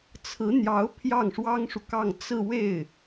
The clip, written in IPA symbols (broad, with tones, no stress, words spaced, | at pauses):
t͡sʰɹ̩˧˥n̪jɑ˧˥ʊ̯ pʰjɑ˥˩ŋʂwɑ˥ŋʂu˨kɑ˥˧ŋ t͡sɹ̩˥˧we˥˩ɪ̯